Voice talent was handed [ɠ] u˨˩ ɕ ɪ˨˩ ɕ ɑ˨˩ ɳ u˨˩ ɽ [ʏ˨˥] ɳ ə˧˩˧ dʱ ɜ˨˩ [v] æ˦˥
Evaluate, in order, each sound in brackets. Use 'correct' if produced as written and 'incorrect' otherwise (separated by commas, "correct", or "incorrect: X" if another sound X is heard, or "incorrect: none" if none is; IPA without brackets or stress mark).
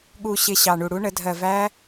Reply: correct, incorrect: u˨˥, correct